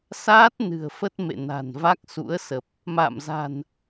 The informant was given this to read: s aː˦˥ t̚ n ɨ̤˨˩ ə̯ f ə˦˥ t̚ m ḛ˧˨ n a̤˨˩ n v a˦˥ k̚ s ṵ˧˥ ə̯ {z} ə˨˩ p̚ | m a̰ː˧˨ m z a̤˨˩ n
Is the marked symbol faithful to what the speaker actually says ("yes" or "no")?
no